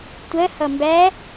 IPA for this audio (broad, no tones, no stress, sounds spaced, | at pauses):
tʷ ɜ h ʌ m b æ